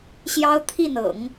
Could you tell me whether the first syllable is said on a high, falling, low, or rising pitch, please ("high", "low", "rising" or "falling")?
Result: high